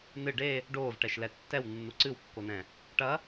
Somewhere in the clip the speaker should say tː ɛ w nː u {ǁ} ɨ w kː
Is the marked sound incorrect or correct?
incorrect: ǀ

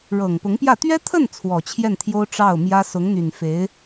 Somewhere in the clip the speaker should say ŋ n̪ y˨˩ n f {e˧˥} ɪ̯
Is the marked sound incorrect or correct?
correct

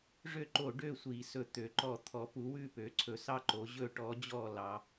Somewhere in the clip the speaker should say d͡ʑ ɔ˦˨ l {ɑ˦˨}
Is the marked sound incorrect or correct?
incorrect: ɑ˩˧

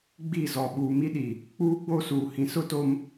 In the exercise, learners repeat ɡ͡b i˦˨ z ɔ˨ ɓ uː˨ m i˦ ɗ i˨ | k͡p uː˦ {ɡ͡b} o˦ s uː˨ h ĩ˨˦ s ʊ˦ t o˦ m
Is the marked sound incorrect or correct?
correct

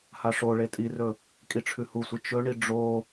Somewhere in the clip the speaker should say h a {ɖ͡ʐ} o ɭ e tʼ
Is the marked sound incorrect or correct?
incorrect: ʂ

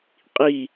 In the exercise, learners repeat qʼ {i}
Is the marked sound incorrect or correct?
correct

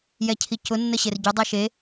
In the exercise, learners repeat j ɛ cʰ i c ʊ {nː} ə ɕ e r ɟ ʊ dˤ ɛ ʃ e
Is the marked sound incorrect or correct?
correct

